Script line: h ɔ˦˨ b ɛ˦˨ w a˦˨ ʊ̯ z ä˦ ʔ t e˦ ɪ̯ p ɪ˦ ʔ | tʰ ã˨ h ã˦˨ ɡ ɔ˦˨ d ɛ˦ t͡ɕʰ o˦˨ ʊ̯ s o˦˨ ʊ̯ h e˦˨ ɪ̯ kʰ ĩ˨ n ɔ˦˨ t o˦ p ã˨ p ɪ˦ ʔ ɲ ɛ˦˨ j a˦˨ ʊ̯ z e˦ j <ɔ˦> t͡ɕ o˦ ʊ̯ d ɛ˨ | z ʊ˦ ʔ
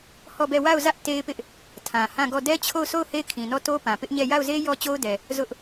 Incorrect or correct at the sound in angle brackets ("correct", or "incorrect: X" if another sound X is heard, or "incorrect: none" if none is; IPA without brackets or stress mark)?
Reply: correct